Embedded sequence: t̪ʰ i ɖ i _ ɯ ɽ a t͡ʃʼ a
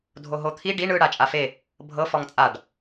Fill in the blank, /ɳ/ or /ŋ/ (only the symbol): ɳ